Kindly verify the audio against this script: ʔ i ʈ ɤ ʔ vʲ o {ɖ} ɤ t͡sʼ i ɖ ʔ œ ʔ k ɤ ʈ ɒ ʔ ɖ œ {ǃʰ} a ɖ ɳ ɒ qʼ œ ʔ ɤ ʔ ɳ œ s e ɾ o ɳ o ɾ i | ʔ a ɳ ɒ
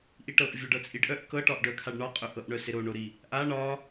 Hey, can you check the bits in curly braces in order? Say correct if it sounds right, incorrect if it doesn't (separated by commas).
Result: correct, incorrect